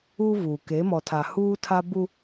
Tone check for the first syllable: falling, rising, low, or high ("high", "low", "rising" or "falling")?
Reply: high